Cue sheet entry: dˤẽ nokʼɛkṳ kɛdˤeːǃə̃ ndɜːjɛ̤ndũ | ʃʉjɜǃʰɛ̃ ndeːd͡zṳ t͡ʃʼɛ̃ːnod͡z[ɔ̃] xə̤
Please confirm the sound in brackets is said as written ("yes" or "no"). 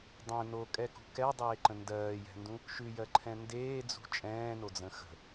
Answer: no